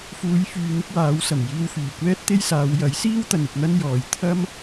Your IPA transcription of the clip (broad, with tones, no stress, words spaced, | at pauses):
fuː˨˧j fyː˧n̪ɪ˥k̚waː˨˥w sɐ˨˩mjiː˧wfyː˨˩ kʷɛː˥t̚t̪e˥jsaː˨˧w jɐ˨˥jsiː˥wt̪ɐ˨n ɪ˧k̚n̪ɐ˥n jɔː˨j t̪ʰɐ˥m